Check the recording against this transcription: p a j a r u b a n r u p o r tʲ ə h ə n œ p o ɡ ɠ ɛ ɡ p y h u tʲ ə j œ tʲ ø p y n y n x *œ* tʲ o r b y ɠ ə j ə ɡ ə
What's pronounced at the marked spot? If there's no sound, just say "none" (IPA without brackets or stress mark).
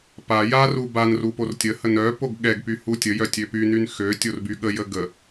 ø